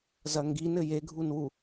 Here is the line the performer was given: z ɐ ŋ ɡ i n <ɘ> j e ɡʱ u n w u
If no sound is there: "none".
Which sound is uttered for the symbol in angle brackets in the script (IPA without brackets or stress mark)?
ɘ